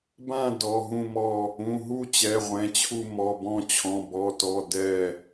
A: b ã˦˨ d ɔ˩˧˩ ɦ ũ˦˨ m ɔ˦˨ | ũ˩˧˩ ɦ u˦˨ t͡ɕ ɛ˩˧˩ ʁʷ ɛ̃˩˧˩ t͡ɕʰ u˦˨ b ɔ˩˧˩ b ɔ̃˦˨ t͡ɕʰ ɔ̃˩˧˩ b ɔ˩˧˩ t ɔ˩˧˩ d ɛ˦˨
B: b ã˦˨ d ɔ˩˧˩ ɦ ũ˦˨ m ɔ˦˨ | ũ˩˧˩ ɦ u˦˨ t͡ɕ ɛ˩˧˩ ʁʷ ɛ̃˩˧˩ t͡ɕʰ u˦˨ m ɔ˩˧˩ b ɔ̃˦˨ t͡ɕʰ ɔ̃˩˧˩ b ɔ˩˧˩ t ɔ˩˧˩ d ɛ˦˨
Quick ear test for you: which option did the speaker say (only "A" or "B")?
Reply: B